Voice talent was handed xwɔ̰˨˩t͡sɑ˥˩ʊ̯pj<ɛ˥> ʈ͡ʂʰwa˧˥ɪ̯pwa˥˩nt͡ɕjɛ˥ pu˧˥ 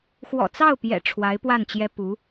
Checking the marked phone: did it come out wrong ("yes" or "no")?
yes